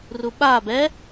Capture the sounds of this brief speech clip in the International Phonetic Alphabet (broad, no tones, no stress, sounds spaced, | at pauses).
r u ɓ a b ɛ